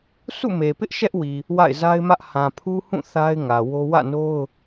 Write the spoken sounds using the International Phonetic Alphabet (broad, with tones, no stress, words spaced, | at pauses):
sʰṵ˦˨me˨pɪ˦ʔ ʃɛ˦ʔwi˨ | wa̰˦˨ɪ̯za˦ɪ̯mä˦ʔ hã˨pʰu˦hũ˦˨ θa˦ɪ̯ŋä˨ wo˦ wä̰˦˨no˦ʊ̯